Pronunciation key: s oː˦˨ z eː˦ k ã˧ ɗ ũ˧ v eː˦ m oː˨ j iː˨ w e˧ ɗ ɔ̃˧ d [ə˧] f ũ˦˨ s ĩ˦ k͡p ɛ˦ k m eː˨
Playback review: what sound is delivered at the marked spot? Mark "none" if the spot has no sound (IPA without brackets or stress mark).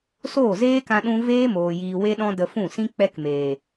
ə˧